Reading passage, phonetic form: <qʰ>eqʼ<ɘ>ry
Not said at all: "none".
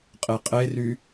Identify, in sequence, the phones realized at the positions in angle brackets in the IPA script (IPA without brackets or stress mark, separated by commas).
qʼ, e